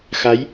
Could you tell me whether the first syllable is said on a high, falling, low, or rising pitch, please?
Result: rising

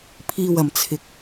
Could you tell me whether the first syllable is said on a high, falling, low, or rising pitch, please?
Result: low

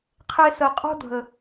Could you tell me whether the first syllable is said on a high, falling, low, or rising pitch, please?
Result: high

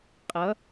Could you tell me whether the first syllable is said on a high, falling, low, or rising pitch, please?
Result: rising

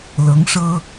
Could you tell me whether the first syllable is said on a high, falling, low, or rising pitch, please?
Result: rising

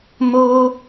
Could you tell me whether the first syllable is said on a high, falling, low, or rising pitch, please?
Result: high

